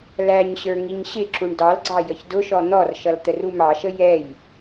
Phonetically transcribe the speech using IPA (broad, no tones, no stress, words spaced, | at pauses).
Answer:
læɲɕə˞ ŋiɲɕɪǁuɳ dɑlɡ͡ǀɑ jəçdʊʃɔ n̪ɔrʃʌl t̪ərumɑʃə jɛj